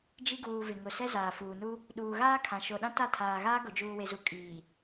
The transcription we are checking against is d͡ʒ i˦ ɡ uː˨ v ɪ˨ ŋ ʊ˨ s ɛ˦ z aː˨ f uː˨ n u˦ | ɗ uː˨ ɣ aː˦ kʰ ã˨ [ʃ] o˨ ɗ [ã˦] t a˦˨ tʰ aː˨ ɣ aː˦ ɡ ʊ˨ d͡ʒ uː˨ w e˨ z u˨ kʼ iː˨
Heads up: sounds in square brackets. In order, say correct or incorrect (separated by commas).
correct, correct